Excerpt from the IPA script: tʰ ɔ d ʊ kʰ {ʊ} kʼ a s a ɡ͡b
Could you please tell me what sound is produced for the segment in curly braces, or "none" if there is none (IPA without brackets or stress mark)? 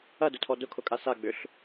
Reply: ʊ